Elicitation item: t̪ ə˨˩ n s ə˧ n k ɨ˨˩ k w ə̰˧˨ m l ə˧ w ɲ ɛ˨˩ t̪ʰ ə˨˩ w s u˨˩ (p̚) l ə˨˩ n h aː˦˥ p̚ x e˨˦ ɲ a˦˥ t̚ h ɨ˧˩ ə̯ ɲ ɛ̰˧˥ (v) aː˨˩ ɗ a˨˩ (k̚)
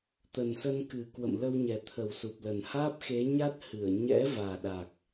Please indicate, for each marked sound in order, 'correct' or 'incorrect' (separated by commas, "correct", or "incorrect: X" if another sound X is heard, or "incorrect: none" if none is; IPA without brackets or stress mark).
correct, correct, correct